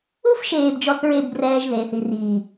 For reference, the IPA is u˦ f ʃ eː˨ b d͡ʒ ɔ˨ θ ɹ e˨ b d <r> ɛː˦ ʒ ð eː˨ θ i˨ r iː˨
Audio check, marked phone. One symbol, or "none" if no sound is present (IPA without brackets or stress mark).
r